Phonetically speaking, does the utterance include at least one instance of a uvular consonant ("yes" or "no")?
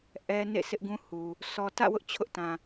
no